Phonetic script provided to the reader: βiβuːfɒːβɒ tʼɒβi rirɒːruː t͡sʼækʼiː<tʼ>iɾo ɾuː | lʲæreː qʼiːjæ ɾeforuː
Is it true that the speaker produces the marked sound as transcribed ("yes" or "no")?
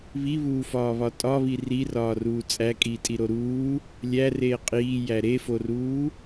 yes